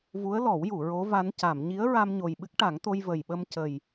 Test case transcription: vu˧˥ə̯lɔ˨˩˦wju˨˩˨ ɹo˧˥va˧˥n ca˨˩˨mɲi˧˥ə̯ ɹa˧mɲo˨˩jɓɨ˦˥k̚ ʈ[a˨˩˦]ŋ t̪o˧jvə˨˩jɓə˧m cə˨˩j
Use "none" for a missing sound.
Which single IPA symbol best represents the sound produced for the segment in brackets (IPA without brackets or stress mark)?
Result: a˨˩˦